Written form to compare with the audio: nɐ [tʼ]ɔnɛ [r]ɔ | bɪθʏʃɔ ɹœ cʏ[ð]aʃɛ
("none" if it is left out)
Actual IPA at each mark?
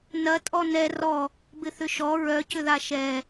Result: tʼ, r, ð

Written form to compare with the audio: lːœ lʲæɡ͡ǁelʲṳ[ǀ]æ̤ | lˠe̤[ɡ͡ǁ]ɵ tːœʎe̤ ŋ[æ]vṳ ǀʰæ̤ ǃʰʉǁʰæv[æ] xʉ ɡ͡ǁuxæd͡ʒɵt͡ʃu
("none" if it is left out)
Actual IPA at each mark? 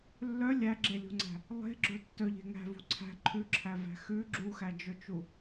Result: ŋ͡ǀ, ɡ͡ǁ, æ̤, æ̤

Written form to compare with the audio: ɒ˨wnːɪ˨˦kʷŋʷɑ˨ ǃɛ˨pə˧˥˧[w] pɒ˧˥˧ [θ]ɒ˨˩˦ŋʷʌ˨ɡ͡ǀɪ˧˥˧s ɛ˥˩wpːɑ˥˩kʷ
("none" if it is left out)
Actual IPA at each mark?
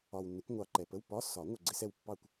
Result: w, s

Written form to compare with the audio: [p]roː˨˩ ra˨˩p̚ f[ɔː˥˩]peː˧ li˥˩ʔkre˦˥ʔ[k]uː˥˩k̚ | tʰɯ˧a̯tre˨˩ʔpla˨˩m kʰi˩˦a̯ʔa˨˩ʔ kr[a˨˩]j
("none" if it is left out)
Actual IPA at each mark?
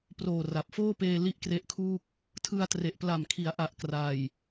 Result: p, oː˥˩, kʰ, a˨˩

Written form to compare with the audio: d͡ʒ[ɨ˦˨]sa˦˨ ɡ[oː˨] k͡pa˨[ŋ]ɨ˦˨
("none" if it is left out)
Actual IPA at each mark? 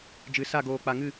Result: ɨ˨, oː˨, ŋ

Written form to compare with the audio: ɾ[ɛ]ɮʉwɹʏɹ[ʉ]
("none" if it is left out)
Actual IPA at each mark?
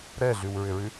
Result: ɛ, ʉ

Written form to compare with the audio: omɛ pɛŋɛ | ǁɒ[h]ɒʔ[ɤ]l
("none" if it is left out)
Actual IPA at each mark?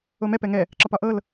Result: p, ɤ

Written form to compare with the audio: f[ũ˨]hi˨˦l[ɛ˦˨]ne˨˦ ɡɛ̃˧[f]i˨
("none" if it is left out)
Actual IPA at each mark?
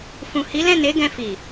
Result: ũ˨, ɛ̃˦˨, f

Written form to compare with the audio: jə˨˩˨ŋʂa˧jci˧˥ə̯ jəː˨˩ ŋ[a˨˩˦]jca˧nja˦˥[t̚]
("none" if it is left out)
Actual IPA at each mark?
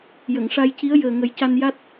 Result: ə˨˩˦, t̚

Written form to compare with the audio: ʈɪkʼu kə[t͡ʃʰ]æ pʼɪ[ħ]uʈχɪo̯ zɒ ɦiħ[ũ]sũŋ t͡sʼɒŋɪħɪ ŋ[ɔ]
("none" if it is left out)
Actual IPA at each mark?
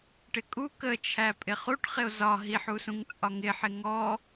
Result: t͡ʃʰ, χ, u, ɔ

